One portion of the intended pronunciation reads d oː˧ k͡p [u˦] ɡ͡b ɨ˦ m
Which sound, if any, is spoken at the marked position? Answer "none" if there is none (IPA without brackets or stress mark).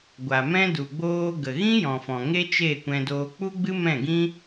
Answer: u˦